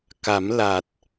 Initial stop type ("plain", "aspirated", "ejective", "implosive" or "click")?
plain